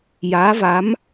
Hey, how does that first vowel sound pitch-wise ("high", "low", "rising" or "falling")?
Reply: rising